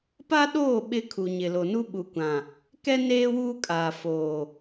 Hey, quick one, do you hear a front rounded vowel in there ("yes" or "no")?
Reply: no